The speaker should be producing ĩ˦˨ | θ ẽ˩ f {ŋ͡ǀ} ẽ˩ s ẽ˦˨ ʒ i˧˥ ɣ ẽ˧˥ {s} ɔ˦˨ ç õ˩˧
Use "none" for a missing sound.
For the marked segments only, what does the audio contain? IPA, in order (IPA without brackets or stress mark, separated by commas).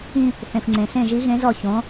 ŋ͡ǀ, z